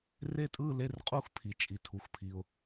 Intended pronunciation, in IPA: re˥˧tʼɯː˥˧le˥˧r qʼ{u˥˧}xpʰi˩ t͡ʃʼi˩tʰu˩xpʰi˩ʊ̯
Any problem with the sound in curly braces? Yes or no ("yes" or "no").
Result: no